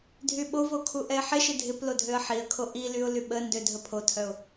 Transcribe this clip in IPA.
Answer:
dʱyɓovo kʰuʔɛɪ̯ħɪʃɪ dʱɪplo dʱøə̯ħiə̯kʰo ʔilyʊ̯ lyɓəndø dʱəpʰotʰœʊ̯

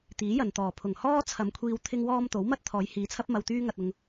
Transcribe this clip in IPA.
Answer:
t̪iː˨˥jɐ˨nt̪ɔː˨˩ pʰʊ˨˩ŋhɔː˥t͡sʰɐ˨˧mkʷʰiː˧w t̪ʰɪ˥ŋwɔː˥m t̪o˨˥w mɐ˥t̚ t̪ʰɔː˨˧jhiː˨˧t͡sʰɐ˥p̚ mɐ˧wt̪yː˥ŋɐ˧t̚ ʊ˧ŋ

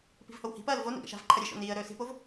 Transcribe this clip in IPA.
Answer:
pi̤vhowhi̤pɐːl vonṵ ɡa̰ʃa̤vǃʰɐ ɾʲeʃo̰ niːə̯ ɾɵːsi̤pov

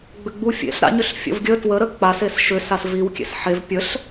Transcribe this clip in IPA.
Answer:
ɡ͡bʏɡ͡bufʲḛɬ ɾa̰ɲʏɬ fʲə̰vɡʲə twəɾə k͡pas esʃʏs asviwkʲḛs ħev pʲəɬ

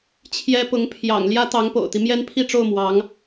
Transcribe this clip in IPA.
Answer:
t͡ɕʰjɛ˥ pʊ˧˥ŋpʰjɑ̰˨˩ŋ ljä˥t̪ɑ˧˥ŋpo̰˨˩ʊ̯t̪i˦ mjɛ˥npʰi˥˧ʈ͡ʂo˥˩ʊ̯ mwɑ˧˥ŋ

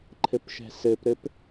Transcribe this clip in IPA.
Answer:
ǃʰɘpʃɛ̤sɘpɾɘp

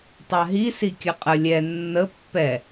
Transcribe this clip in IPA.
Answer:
tˤaɦi sikʲəqʼə lʲɛ nːə pːɛ

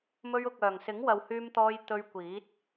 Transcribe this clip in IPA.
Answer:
mɵ˧ɥʊ˨k̚œː˨˩ŋsɪ˨˥ŋ wɐ˨whyː˧mt̪ɔː˧j t̪ɵ˧ɥkʷiː˨˥t̚

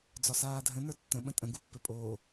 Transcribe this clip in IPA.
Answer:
d͡zɒsaːdʱə̃ nə˞tːə̃ ɓə̃tʼə̃ ɡupːɘpʼoː

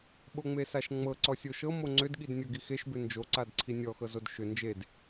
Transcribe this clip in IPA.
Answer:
ɓoŋ͡mesaʃŋ͡mɤ ǀɔsʲoʃɤ moŋ͡ǀʏd ɠidnʲɤɡixeʃ bʏnd͡ʒo ǀadǀʰinʲɔ xɤzodʃʏ nd͡ʒed

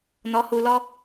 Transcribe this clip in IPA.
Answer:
nɔ˨˦hu˨lɔ˦

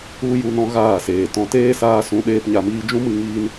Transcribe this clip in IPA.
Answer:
u˦ju˧nɔ̃˧ ɣaː˦˨seː˨tɔ̃˧ teː˦saː˧sũ˨˦ ɗeː˦pɲa˧miː˦ d͡ʒũ˦mɨ˧ ŋiː˧n

